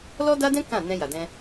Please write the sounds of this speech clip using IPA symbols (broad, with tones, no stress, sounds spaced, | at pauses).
l ɔ˦ d a˦ d ɛ̃˦ k ã˦˨ n ɛ̃˧ j a˨ d ɛ̃˧